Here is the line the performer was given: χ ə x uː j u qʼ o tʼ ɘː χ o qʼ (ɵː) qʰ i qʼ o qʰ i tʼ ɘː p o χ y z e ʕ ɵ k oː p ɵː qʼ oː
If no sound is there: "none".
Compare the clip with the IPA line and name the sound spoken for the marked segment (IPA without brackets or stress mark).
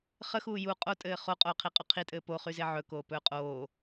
oː